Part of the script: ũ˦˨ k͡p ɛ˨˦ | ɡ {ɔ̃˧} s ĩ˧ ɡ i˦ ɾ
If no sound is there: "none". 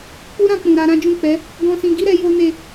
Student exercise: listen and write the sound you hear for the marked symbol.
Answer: ɔ̃˧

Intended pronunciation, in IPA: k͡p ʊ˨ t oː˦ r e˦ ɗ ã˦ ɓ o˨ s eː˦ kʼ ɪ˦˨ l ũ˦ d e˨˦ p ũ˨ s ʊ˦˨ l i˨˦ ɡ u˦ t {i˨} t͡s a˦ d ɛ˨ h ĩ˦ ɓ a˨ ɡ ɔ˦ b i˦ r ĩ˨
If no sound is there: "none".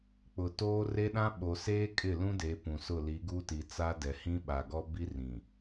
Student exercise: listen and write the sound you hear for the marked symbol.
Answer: i˨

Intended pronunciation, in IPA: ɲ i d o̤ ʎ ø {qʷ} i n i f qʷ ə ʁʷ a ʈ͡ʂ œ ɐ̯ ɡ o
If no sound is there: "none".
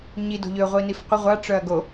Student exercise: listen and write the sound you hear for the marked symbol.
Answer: ʁʷ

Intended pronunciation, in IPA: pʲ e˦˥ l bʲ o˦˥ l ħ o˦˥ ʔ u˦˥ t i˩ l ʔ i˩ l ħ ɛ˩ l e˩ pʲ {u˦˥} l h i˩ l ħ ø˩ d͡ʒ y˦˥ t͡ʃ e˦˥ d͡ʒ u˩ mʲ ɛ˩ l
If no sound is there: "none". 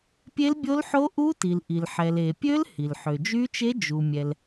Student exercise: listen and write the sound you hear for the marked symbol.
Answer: ø˦˥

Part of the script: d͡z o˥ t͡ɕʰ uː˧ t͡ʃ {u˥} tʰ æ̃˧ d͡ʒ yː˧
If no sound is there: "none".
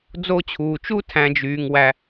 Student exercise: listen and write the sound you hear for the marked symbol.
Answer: u˥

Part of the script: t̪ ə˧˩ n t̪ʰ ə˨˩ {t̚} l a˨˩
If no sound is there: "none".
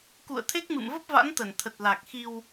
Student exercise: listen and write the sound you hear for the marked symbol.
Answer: t̚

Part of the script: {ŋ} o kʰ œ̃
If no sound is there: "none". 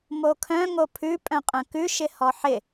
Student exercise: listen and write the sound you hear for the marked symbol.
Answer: m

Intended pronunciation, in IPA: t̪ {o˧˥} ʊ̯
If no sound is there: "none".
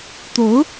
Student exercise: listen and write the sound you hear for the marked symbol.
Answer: o˧˥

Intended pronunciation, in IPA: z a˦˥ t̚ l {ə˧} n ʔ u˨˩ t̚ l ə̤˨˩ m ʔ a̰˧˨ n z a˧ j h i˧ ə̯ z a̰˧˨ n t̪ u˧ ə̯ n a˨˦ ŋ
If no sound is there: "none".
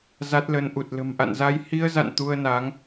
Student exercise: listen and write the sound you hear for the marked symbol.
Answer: ə˧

